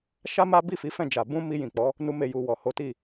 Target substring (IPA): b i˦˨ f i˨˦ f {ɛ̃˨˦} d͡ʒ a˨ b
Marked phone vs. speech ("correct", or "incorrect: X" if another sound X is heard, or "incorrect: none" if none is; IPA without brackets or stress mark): incorrect: ɛ̃˦˨